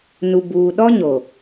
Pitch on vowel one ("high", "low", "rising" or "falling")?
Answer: low